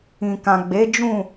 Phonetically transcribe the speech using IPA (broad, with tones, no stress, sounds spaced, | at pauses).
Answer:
ĩ˨ k ã˨ ɡ͡b e˨˦ d͡ʒ ũ˦˨